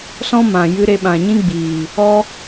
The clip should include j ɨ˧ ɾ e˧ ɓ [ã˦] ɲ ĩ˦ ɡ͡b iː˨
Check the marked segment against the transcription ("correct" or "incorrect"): incorrect